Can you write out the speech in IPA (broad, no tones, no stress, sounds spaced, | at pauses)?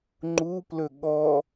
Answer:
ŋ͡ǃ u p l ɵ ɠ ɔ